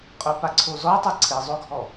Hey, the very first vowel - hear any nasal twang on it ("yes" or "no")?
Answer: no